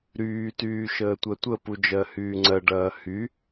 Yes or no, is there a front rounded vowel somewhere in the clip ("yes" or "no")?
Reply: yes